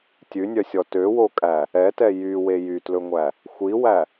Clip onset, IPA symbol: tʲ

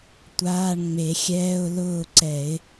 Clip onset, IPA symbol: tʷ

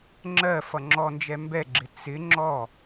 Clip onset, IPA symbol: ŋ͡ǁ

